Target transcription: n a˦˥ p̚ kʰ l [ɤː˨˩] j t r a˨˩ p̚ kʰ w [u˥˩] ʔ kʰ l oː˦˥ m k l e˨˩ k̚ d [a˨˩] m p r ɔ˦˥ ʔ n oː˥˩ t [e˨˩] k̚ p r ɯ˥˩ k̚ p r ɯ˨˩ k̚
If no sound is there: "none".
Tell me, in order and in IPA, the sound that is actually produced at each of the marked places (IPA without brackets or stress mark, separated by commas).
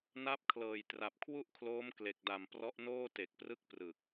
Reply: ɤː˨˩, u˥˩, a˨˩, e˨˩